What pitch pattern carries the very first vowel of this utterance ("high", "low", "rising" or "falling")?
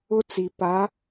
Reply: high